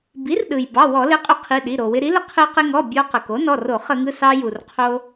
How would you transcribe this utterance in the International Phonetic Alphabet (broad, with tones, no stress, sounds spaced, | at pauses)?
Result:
b i˩˥ r ɗ ɯ˩ j b ɑ˩˧˩ w ɔ˧˩˧ l ɪ˩˥ qʼ ʏ˩˥ qʰ i˩˧˩ ɗ i˩˧˩ ɾ o˩ w ɪ˧ ɾ i˩˥ l ɪ˧ qʰ ɯ˧ q ɪ˧ ŋ ɔ˩˧˩ bʲ ɔ˧ q ə˩ k o˩˥ n ɔ˩˧˩ r o˧˩˧ χ ə˧˩˧ ŋ ɯ˩˧˩ s ɑ˧ j u˩ r qʰ o˧